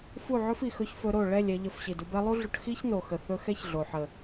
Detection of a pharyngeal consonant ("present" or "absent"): present